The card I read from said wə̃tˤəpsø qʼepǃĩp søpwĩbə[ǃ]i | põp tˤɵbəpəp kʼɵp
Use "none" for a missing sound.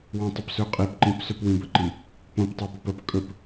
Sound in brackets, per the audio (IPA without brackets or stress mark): ǃ